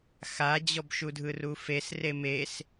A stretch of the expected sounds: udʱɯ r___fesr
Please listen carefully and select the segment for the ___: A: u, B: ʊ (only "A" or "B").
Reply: A